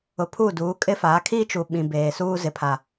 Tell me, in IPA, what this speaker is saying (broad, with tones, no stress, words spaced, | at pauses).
ʊ˨ pʰuː˦˨duː˨˦ kʼɪ˦fa˨˦ kʰi˦t͡ʃu˨ ɓĩ˨beː˨suː˦ zɪ˦pʰa˦